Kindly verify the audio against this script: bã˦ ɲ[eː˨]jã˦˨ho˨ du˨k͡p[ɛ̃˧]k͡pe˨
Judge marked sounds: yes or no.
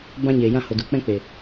yes, no

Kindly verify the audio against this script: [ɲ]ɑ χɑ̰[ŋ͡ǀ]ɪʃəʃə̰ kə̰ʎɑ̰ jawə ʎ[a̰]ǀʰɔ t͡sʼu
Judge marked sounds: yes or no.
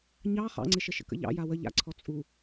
yes, yes, yes

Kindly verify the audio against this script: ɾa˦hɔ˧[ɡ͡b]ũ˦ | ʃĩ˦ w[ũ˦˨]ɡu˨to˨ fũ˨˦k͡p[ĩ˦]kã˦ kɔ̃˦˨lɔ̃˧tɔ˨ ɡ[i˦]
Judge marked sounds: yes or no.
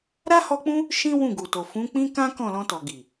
no, yes, yes, no

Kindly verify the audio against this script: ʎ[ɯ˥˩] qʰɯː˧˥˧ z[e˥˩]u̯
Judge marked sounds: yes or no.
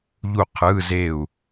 no, yes

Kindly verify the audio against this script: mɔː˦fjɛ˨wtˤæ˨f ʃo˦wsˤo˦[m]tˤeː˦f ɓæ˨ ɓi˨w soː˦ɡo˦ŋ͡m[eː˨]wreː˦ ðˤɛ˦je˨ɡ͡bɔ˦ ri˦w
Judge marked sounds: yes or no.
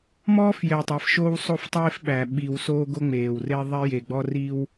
no, yes

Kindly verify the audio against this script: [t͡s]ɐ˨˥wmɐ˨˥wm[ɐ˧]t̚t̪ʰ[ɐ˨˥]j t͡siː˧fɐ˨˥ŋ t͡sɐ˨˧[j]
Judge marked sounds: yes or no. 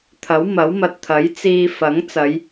no, no, yes, yes

